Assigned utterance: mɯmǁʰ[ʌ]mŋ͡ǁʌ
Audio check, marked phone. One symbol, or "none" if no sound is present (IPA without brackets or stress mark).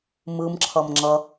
ʌ